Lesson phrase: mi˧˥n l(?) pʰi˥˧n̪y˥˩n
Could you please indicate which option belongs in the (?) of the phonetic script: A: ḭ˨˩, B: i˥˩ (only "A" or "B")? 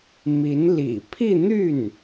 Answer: A